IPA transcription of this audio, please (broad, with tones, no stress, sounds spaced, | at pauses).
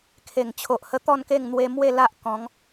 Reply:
kʰ e˨˩ ŋ t͡ɕʰ o˨ ʔ h ə˧ t̪ ɔ˥˧ n k e˥˧ ŋ n̪ w e˧ m w e˥˧ l a˦ ʔ k ɔ̃˨˦ ŋ